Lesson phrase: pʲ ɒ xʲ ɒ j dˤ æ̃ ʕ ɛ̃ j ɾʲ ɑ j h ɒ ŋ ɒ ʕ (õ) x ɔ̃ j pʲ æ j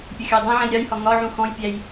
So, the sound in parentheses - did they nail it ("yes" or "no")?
no